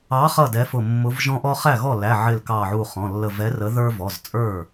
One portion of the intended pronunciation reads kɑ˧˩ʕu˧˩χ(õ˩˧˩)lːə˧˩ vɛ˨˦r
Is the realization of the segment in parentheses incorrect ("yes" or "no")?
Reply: yes